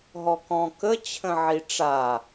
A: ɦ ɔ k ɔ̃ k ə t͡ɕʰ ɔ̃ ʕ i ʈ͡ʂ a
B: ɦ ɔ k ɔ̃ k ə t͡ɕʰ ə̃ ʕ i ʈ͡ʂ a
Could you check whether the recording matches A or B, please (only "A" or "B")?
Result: B